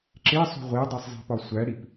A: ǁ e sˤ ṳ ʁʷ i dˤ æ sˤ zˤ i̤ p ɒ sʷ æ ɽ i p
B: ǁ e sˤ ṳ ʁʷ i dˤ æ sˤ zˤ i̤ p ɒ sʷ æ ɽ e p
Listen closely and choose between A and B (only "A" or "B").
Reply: A